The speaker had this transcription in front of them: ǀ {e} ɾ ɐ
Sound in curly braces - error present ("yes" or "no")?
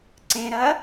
yes